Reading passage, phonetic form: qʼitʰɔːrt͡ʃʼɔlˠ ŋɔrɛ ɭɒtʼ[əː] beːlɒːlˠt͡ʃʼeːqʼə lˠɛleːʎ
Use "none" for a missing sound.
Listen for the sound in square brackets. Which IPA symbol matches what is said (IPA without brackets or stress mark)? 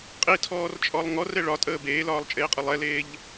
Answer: əː